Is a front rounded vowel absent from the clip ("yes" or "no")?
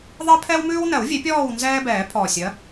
yes